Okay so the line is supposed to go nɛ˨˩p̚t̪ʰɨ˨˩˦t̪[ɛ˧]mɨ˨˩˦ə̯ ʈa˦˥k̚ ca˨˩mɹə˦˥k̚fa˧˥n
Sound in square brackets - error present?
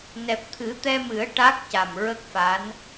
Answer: no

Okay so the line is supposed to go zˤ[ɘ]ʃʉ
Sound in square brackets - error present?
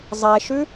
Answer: yes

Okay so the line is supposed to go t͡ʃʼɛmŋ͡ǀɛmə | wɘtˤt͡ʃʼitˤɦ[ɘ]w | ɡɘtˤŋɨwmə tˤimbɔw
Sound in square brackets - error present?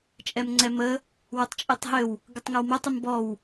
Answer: no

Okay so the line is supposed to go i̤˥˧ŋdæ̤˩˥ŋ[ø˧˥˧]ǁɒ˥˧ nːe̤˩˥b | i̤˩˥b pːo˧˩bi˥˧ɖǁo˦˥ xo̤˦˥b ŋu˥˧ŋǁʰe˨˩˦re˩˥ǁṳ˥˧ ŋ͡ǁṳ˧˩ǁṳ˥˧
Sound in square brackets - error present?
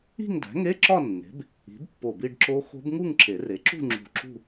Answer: yes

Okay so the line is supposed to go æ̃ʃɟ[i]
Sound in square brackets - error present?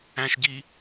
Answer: no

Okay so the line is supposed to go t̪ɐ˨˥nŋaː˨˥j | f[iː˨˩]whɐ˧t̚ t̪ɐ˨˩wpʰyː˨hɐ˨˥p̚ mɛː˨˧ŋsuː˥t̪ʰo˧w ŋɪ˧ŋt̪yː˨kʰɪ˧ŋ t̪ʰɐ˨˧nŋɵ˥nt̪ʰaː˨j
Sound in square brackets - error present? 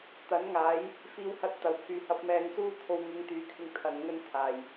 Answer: yes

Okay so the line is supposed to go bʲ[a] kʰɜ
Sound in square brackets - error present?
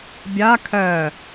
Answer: no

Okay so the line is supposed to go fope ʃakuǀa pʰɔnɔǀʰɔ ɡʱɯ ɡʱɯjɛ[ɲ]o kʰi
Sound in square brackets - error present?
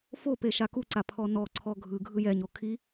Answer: no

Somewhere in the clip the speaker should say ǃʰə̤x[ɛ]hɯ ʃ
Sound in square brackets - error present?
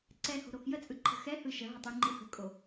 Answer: no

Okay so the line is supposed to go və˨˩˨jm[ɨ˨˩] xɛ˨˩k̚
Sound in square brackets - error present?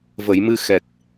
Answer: yes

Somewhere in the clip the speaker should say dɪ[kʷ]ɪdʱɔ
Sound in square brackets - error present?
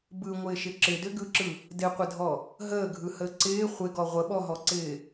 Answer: yes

